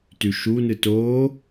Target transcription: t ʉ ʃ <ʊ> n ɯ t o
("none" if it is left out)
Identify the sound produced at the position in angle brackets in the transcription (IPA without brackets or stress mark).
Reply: u